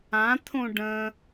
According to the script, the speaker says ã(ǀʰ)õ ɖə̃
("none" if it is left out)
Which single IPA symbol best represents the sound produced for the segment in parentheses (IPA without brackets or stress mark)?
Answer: t̪ʰ